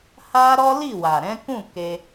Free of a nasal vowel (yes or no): no